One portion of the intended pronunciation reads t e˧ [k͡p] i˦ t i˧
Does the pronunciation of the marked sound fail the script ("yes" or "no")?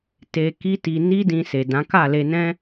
yes